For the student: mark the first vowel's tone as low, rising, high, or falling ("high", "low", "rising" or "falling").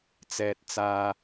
high